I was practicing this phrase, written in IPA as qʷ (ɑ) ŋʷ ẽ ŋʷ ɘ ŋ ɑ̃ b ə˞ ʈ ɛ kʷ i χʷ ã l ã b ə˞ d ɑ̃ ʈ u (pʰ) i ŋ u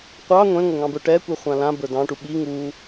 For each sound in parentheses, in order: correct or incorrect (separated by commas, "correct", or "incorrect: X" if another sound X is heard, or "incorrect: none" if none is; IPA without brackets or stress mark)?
correct, incorrect: ɓ